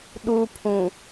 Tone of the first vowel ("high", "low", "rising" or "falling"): high